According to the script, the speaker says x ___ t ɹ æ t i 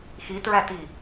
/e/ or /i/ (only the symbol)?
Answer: i